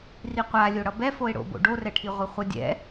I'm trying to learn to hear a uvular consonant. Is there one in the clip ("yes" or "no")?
yes